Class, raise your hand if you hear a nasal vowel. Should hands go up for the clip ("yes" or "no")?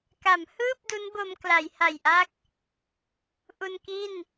no